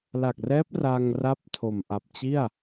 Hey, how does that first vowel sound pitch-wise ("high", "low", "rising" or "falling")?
low